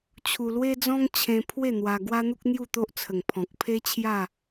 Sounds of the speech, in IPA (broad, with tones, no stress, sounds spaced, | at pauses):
t͡ɕʰ u˧ l w e˦ d͡z ɔ̃˦ ŋ t͡ɕʰ ẽ˧ pʰ w e˥˧ n̪ w a˧ ɡ w a˦ n̪ u˦ k̚ n̪ j u˥˧ t̪ o˦ ʔ t͡sʰ ə˨˩ ŋ pʰ ɔ̃˨ k̚ pʰ e˦ t͡ɕʰ j a˥˧